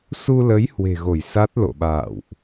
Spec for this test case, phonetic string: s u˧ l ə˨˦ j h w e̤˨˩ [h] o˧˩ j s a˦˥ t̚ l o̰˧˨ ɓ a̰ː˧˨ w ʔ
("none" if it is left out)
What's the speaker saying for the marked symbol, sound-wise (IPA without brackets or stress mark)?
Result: ɣ